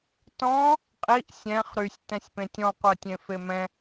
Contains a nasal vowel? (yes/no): yes